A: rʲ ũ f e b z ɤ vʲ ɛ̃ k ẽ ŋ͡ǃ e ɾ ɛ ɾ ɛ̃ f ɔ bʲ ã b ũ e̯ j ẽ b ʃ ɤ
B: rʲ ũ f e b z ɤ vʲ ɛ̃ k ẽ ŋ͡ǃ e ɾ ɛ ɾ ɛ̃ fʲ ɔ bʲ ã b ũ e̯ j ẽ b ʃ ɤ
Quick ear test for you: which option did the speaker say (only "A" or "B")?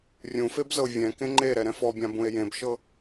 A